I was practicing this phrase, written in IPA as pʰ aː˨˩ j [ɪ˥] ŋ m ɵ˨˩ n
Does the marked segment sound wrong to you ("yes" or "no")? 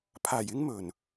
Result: no